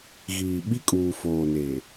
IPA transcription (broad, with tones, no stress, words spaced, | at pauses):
ɣiː˨ ɓi˦kʼuː˨ foː˨ne˨